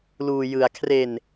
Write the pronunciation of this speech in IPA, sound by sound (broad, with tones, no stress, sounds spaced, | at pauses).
l uː˧ j ɯ˧ a̯ kʰ r e˧ n